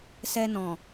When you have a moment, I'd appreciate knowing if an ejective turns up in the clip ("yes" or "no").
no